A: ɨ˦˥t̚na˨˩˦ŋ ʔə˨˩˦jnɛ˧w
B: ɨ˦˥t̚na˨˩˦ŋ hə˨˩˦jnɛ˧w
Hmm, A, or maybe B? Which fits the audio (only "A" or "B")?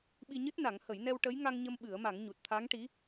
B